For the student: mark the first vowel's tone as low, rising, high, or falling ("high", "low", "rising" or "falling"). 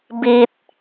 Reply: high